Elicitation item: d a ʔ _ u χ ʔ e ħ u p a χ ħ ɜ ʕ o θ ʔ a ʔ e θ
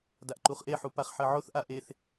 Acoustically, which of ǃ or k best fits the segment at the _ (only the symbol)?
ǃ